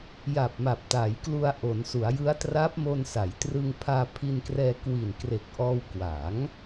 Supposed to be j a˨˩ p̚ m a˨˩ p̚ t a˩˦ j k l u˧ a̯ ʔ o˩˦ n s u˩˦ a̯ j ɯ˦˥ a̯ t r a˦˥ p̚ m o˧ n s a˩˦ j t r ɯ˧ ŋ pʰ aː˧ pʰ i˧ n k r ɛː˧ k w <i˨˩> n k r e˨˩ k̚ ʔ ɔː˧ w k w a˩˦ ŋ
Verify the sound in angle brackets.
correct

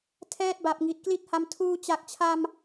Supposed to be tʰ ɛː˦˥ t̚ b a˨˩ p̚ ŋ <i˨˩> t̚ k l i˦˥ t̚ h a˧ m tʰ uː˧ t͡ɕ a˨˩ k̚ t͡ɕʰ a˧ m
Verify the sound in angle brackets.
correct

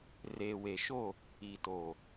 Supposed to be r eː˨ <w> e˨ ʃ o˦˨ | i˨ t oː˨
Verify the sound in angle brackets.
correct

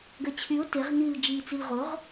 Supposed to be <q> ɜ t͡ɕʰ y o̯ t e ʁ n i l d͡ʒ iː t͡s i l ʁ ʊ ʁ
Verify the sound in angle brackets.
incorrect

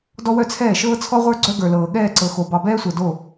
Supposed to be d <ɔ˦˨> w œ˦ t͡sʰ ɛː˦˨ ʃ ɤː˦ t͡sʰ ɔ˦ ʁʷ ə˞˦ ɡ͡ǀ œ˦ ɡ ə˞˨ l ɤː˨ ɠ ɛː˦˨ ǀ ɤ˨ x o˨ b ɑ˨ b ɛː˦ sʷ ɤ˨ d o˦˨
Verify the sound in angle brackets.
incorrect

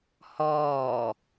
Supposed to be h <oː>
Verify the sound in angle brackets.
incorrect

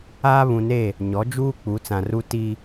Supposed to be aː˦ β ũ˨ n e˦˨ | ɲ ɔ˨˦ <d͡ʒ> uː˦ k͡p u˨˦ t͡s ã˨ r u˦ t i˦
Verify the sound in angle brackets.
correct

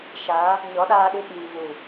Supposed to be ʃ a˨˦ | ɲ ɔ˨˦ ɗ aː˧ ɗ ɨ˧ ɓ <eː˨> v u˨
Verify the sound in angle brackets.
incorrect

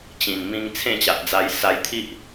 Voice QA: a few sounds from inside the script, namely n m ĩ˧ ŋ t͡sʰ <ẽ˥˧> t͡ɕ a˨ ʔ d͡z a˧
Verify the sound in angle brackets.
correct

